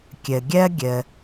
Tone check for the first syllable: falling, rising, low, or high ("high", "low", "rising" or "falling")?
low